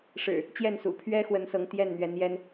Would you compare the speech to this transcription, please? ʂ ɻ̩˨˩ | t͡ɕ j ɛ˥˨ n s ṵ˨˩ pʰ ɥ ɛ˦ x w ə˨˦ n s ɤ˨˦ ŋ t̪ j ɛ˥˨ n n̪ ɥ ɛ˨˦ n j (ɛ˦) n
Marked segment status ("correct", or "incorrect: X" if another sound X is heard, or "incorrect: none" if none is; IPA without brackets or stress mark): correct